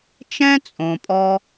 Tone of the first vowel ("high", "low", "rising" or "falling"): high